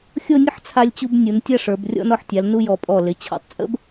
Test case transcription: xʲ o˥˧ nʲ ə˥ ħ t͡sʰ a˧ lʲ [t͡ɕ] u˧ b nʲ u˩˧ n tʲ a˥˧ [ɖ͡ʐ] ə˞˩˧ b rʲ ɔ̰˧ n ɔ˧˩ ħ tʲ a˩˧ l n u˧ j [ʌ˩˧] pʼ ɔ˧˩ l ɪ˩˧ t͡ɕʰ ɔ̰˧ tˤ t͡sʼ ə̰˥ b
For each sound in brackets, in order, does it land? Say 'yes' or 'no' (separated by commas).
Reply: yes, no, no